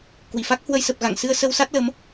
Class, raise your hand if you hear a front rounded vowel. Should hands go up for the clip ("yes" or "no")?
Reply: no